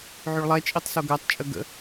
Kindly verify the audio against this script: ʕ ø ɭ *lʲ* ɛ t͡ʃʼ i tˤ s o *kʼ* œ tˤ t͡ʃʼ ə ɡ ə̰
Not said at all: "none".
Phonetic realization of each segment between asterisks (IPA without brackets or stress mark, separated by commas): lˠ, ɡ